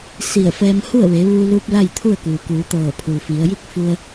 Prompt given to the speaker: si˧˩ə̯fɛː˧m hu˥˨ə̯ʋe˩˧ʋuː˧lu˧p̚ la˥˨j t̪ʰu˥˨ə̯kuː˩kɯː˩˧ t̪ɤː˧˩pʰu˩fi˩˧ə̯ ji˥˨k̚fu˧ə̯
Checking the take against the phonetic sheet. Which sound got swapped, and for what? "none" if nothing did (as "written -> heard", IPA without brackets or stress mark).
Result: ɯː˩˧ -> uː˩˧